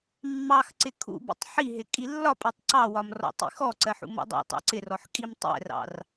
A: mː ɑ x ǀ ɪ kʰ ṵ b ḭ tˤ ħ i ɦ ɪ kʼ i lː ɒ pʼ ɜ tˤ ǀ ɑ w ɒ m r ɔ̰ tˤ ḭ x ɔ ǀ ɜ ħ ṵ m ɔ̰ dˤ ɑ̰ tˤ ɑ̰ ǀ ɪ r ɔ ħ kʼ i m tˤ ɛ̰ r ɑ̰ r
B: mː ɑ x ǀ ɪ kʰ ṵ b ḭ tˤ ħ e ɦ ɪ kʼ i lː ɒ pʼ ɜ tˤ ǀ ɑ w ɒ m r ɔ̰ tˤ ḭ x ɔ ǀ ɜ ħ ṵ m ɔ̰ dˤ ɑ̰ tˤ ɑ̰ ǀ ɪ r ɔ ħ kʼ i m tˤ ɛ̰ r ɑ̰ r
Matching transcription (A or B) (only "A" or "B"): A